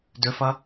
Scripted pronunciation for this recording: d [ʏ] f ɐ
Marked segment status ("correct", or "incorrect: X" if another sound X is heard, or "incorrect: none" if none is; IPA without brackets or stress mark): correct